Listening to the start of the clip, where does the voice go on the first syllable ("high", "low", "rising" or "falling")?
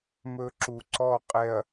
high